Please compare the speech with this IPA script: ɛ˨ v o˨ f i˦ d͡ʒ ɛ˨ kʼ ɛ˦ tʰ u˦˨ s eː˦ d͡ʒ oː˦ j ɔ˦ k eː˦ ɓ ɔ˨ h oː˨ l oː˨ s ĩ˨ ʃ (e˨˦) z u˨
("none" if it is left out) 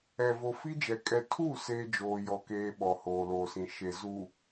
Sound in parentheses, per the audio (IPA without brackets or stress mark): e˨